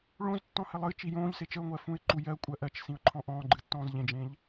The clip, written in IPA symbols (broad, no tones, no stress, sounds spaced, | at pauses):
ɭ õ z tː ɔ̃ h ɘ lˠ ɨ t͡ʃ i j õː ʎ s e t͡ʃ ə ʊ̯ ŋʷ ɜ f ũ ɪ̯ ǃ u j ɜ kʷʼ ɜ ʔ ɜ t͡ʃ s ĩ ʊ̯ ǃʰ ɔ̃ ʔ ɔ̃ː ɡ͡ǃ ɨ tː ɔ̃ː z ʎ ẽ d͡ʒ ẽ ʎ